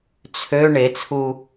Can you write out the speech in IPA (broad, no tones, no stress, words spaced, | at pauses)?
t͡sʰø ɳet͡sʰuː